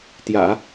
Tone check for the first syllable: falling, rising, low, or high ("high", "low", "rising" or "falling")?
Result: low